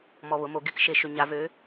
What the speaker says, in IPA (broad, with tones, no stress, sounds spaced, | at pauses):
m ɔ˧ β ʊ˩˥ m o˩˥ ɡ ɪ˧˥ k ʃ e˧ ʃ ʏ˧ ɲ a˧˥ v ø˧˥